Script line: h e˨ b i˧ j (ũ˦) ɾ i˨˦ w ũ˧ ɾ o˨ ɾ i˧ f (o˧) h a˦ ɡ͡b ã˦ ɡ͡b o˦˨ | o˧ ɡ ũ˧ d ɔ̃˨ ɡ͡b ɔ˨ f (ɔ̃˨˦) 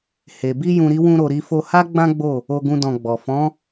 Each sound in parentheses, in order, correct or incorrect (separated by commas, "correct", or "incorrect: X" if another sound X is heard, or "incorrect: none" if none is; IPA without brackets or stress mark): incorrect: ũ˨, correct, correct